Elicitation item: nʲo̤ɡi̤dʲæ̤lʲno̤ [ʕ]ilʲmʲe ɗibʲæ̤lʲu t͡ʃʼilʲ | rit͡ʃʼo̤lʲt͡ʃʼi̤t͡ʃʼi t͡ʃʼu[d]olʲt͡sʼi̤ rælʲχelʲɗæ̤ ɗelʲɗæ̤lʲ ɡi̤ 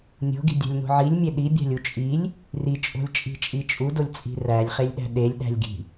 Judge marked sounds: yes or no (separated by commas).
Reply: yes, yes